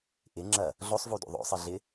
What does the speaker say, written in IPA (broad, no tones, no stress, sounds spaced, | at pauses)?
ʔ ɪ ŋ͡ǁ ɐ | ɮ o sˤ v u d ṵ ðˤ o̰ sˤ ɨ ɮ ɪ